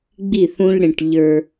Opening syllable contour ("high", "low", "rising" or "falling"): falling